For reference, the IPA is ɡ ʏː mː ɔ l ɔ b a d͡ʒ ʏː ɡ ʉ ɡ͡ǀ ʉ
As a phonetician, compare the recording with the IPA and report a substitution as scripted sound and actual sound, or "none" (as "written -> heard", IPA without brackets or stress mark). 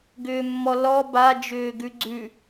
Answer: none